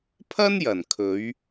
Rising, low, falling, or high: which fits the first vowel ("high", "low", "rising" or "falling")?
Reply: high